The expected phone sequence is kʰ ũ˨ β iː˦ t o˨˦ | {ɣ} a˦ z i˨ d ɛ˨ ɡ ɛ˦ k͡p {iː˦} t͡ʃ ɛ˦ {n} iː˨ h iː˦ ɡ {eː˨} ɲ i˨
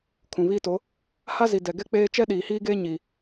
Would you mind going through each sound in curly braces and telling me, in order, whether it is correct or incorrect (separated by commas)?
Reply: incorrect, incorrect, incorrect, incorrect